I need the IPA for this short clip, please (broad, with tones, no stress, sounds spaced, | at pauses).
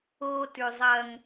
o˦ t ʉ˨ zˤ ɐ˦ ŋ